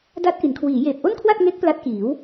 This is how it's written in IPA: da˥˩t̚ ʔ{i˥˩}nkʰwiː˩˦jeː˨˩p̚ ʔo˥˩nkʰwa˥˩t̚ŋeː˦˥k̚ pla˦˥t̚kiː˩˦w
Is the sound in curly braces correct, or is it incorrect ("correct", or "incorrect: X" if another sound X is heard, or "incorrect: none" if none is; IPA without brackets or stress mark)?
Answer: incorrect: i˩˦